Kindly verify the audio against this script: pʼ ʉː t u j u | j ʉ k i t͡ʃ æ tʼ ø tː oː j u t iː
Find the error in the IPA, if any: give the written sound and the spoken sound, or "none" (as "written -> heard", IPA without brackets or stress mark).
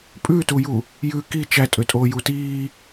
tː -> tʼ